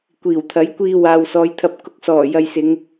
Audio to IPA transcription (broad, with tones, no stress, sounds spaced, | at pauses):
kʷ iː˨˩ w t̪ʰ ɐ˨˥ j kʷ iː˧ w aː˨ w s ɔː˨˧ j t̪ʰ ɐ˧ p̚ k ʊ˧ k̚ s ɔː˨˩ j ɐ˨ j s ɪ˨˧ ŋ